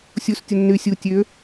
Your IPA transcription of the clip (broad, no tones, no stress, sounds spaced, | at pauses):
sʲ u s tʲ ʊ nː y sʲ u tʲ ø